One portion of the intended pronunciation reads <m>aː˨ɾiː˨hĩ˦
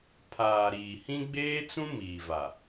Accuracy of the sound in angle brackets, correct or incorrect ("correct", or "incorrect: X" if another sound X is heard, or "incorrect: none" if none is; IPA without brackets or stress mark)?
incorrect: pʰ